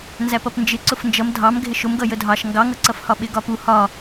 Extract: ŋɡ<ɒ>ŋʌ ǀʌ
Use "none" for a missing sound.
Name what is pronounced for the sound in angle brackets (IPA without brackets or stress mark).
ɑ